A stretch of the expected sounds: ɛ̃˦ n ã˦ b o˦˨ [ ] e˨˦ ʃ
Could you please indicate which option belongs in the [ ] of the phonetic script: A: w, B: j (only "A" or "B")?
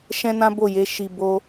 B